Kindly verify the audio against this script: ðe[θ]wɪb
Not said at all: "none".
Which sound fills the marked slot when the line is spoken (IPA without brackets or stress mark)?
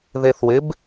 θ